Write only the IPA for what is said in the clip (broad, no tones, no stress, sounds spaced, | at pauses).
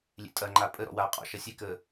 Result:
lʲ ḛ tʼ ɐ ŋ͡ǃ a pʼ ə ɾ ɔ̰ w aː qʼ ɔ̰ ʃ ɐ sʲ e k əː